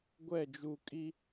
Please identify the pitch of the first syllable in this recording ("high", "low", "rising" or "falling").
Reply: falling